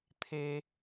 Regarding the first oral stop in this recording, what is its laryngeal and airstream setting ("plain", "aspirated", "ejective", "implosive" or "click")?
aspirated